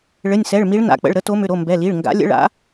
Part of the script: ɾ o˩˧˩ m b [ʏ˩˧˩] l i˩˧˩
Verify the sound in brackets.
incorrect: ɛ˩˧˩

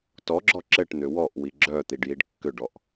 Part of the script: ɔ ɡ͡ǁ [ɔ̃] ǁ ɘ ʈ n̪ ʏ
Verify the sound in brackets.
incorrect: ɔ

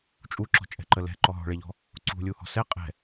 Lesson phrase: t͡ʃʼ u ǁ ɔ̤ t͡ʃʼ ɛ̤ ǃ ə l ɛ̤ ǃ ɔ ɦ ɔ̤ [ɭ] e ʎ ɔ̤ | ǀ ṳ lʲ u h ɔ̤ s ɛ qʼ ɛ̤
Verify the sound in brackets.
correct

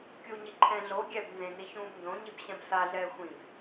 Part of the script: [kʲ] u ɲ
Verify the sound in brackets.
correct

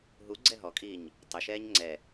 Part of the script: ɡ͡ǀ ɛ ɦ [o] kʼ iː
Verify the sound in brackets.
incorrect: ɔ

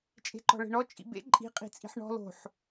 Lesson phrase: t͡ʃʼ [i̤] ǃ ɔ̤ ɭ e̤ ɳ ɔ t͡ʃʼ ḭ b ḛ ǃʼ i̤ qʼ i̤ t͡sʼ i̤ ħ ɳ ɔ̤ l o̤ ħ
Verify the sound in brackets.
incorrect: e̤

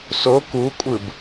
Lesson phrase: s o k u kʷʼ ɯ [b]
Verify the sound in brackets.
correct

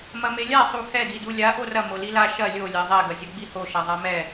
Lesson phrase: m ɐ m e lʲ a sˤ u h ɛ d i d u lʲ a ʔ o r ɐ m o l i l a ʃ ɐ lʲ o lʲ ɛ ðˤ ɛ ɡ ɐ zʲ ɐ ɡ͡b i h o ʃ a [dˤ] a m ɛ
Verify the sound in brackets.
incorrect: ðˤ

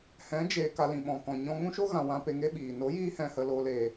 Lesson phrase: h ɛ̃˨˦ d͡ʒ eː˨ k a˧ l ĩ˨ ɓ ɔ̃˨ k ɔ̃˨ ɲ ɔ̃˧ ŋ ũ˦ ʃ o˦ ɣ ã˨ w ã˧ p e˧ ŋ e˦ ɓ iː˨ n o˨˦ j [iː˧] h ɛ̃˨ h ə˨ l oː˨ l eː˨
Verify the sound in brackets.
correct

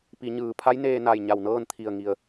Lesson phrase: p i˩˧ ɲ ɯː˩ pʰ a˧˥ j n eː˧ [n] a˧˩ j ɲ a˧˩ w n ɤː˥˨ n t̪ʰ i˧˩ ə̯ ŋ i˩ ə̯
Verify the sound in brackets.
correct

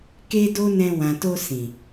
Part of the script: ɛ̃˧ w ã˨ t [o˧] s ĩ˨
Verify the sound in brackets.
correct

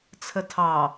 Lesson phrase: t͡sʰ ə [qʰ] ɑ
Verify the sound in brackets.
incorrect: tʰ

